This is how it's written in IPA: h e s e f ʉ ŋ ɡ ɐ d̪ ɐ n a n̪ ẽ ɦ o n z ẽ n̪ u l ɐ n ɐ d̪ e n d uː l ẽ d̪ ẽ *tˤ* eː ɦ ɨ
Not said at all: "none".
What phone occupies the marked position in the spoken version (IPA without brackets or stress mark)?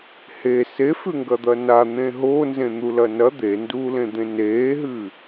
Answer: n